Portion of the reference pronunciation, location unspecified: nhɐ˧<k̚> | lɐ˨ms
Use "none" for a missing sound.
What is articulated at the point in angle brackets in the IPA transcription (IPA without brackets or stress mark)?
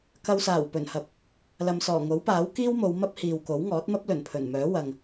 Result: p̚